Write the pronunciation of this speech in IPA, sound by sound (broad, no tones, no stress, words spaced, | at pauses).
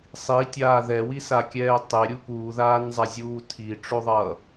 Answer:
sˤitʲaː ðɛwisakʲɛː tˤeɾʲu puːðaːnzˤazʲuː tʰiʈ͡ʂoðˤʌː